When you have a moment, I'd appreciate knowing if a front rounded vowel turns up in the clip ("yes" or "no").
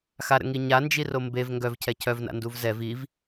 yes